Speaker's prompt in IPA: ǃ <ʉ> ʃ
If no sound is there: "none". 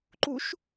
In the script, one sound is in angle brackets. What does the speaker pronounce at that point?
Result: u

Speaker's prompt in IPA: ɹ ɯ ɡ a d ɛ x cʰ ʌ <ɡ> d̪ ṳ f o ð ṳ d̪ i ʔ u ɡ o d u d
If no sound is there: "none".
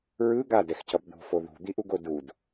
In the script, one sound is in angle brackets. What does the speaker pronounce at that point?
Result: b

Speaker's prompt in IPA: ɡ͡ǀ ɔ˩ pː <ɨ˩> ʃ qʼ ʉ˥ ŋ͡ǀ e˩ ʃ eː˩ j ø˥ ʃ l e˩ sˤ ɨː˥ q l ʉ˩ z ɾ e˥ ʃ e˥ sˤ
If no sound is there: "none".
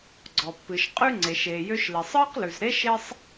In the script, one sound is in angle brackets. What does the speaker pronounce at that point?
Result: ɨ˩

